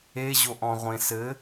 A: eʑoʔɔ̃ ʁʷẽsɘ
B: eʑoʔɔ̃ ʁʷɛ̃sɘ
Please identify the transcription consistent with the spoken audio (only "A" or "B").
A